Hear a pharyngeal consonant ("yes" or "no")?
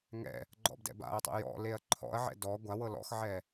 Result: yes